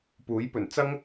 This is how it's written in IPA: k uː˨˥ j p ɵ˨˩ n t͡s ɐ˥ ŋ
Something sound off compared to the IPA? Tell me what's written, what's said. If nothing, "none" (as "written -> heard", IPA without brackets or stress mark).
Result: k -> p